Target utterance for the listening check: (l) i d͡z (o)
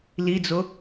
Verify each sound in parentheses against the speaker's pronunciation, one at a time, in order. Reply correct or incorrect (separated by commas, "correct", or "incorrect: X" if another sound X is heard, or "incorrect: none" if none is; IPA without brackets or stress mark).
correct, correct